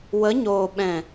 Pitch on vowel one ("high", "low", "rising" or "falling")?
rising